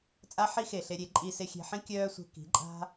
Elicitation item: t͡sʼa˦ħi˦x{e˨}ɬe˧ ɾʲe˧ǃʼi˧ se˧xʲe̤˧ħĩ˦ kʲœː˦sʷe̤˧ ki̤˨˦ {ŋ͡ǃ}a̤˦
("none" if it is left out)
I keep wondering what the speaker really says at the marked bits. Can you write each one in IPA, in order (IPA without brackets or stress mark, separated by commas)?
e˨, ǃʼ